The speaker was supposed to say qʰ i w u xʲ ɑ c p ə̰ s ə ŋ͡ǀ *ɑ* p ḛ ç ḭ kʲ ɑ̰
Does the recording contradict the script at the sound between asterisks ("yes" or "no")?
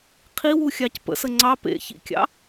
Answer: no